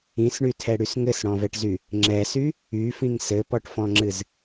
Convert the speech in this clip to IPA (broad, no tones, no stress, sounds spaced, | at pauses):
ĩ s ɳ y tʰ ɛ ɽ y s ŋ ɘ s ɽ ɔ̃ v ɛ ʈ z y | ŋ͡ǁ ɛ s y | y f ĩ ŋ s ɘ p ɔ ʈ f ɔ̃ ŋ͡ǁ ɨ z